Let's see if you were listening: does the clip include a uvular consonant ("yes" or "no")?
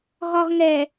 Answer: yes